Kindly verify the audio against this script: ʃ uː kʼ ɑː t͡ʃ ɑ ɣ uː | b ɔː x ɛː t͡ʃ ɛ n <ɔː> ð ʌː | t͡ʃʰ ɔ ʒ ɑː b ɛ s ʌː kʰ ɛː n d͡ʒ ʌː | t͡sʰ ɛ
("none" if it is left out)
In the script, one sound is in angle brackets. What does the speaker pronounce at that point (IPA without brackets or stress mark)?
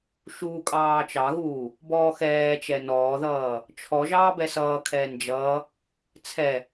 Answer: ɔː